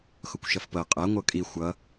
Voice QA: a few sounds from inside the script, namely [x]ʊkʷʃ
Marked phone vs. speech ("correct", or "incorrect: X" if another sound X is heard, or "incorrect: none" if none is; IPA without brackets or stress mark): correct